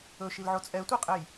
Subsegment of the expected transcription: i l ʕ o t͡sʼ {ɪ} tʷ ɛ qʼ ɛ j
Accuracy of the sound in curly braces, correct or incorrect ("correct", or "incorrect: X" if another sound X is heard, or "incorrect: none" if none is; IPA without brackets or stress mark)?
incorrect: ɛ